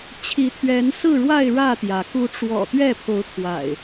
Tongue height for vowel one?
high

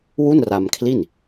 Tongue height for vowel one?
high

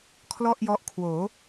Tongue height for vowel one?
mid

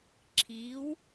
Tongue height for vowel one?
high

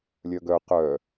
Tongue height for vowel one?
mid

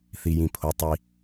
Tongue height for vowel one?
high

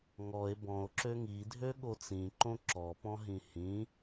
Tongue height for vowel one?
mid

